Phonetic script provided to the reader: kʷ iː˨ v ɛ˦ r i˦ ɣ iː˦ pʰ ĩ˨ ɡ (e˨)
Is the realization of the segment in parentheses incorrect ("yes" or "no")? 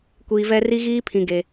no